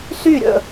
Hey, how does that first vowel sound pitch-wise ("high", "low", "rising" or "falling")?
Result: falling